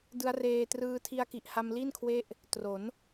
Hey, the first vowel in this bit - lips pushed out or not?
no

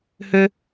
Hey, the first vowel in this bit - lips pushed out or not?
yes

